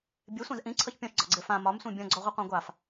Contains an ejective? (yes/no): no